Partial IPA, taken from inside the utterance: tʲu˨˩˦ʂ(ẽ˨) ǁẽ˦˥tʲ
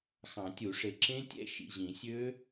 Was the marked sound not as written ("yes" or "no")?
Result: yes